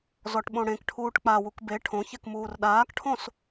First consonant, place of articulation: alveolar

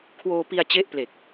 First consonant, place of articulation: velar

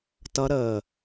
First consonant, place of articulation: alveolar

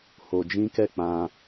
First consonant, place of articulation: glottal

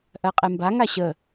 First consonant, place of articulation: glottal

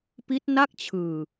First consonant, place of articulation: labial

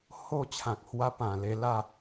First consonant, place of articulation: glottal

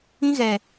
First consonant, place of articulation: velar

